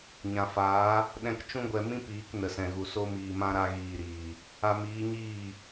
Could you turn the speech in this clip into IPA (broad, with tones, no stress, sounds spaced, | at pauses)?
ɲ ã˨ f aː˨˦ | ɗ ɛ̃˧ k t͡ʃ ũ˦ ɡʷ ɛ˧ m ĩ˦ p iː˨˦ k n ə˨ s ɛ̃˨ ɣ u˨ s o˧ m iː˨ m ã˧ ɾ a˧ ɣ iː˨ ɾ iː˨ | a˧ m iː˨˦ ɲ iː˦˨